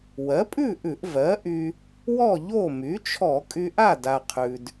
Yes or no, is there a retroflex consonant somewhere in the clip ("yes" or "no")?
no